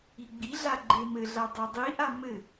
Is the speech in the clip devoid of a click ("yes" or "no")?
no